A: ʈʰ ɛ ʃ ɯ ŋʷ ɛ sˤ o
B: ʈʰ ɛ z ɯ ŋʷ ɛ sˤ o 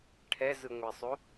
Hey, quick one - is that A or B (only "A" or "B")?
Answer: B